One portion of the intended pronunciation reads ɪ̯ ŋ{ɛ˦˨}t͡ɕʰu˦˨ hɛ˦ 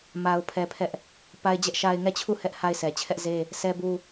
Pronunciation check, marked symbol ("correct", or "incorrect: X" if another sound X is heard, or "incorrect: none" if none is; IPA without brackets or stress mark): correct